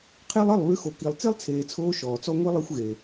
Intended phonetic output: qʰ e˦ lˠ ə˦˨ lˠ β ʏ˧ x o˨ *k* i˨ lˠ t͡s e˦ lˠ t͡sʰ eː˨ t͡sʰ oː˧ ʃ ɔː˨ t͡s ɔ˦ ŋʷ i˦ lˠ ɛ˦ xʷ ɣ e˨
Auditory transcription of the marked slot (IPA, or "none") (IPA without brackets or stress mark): k